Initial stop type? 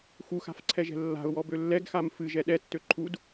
click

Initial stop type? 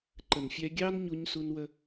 click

